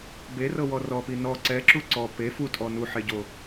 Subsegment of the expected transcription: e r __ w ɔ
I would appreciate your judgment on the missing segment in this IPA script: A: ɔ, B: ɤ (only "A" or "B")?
B